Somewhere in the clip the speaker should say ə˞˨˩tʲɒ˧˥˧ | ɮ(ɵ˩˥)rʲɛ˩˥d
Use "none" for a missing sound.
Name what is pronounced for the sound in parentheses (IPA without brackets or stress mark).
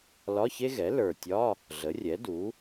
ə˩˥